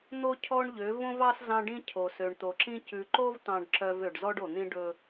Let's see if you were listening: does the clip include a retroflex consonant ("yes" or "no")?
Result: yes